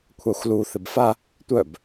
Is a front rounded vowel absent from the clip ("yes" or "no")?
no